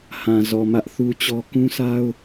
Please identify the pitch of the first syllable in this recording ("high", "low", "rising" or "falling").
low